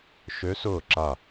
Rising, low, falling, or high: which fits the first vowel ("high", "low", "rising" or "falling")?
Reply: rising